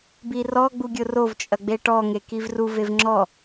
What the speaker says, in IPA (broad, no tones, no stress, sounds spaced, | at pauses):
b i r ɔ ɡ͡b u ɡʲ ʊ r o v t͡ʃʼ ɐ ɡ͡b e ʈ ɔ ŋ e k i v r u v e v ŋ͡ǁ ɔ